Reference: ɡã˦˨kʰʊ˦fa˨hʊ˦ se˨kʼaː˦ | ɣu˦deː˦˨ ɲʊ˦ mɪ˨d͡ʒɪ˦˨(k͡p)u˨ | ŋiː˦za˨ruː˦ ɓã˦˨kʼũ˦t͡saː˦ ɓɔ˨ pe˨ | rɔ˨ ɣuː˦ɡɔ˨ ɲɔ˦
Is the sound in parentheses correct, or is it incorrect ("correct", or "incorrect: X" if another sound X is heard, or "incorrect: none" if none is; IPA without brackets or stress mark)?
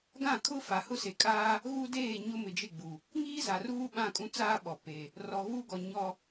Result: incorrect: ɡ͡b